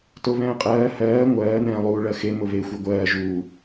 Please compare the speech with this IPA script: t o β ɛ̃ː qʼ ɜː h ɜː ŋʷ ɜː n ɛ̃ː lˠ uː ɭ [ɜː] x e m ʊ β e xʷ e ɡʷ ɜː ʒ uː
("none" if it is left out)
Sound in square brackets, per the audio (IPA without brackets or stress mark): ɜ